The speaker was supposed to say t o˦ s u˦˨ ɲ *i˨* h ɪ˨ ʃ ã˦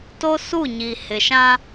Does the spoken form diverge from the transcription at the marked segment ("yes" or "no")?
no